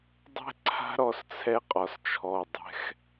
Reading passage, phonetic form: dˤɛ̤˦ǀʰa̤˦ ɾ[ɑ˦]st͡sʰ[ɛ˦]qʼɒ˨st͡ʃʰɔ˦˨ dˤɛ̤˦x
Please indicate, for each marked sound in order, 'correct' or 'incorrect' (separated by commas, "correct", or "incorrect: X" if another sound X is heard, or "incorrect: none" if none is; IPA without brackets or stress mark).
incorrect: ɔ˦, correct